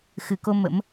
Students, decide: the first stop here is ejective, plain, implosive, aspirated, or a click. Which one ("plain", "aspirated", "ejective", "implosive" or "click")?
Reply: plain